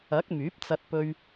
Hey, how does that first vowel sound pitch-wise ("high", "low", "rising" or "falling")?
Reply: rising